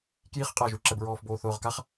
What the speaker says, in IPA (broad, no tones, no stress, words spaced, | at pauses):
kjiχ qʼaʒuǁɛbɹɔːf boːθʊːʁkaχ